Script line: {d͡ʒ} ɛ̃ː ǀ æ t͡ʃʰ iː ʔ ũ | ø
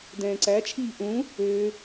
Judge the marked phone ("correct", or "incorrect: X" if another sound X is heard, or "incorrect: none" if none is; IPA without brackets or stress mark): incorrect: d